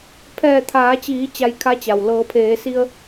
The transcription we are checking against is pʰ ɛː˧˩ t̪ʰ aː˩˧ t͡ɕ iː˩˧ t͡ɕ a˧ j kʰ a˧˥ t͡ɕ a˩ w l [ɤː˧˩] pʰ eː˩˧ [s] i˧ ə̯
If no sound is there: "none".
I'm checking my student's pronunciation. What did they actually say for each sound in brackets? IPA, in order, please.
ɤː˩˧, s

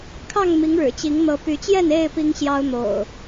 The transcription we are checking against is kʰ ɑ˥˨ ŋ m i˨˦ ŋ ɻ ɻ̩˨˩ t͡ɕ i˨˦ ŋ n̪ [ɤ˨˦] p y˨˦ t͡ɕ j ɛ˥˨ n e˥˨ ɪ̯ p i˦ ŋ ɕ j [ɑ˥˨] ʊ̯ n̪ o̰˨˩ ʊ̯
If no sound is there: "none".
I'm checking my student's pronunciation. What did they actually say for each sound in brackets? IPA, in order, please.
ɤ˨˦, ɑ˦

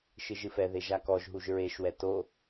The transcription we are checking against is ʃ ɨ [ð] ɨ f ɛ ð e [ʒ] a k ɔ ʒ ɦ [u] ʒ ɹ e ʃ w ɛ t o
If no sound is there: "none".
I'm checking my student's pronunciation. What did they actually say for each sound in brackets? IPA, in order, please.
ʒ, ʒ, u

